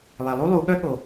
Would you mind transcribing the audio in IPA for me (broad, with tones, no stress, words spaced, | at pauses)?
lˠe˨lˠu˥lˠu˨˦ɠœ˥ ɠo˨